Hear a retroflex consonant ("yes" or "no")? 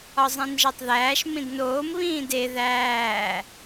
no